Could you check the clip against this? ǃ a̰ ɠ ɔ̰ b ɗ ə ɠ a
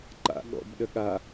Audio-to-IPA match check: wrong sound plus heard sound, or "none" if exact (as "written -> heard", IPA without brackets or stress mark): none